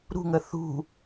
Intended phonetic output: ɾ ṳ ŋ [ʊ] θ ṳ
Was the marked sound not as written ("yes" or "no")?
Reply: yes